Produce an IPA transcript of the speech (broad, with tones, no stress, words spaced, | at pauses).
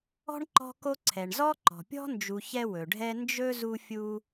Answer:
ɔ̤˥ɳǃɔ̤˦ko˦ ǀʰɛ˩ɳzɔ˥ ǃɔ̤˩pʲɔ̤˥nd͡ʒu˨ çɛ˦wɵ˩ɖʱɛ˦ nd͡ʒɵ˥zu˦fʲu˦